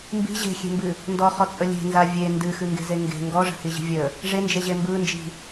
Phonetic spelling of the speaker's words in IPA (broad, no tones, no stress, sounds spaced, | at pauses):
m b i̤ ʑ e̤ xʲ e̤ m b ɨ | n d ɔ χ ɔ t͡sʼ ə lʲ e̤ n z a vʲ e n d ɨ x ɨ ŋ ɡ e̤ z e ŋ ɡ e̤ ŋ ɡ ɔ ʐ ə̤ h i ʑ i̤ vʲ ə | ʐ e n d͡ʒ e ʑ e m b ɯ n d͡ʒ i̤